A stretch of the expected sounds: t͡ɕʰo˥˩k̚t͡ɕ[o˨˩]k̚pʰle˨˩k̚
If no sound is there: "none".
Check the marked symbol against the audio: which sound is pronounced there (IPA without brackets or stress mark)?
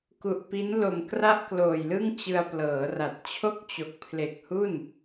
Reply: o˨˩